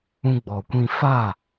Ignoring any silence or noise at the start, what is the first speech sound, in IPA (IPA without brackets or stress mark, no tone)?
ũ